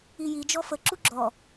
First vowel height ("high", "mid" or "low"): high